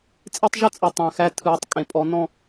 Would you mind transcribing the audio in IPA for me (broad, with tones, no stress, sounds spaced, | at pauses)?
t͡sʼ e˦ tˤ ʒ ə˦ t͡sʼ ɯ˨ tˤ æ̃˨ x æ˦ tʰ ɯː˨˦ tˤ kʼ ẽ˨ pʼ ɔ˨˦ n ɔ̃˦˨